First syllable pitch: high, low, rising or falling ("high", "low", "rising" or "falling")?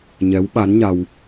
rising